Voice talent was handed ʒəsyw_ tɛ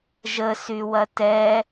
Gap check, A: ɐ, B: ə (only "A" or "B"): A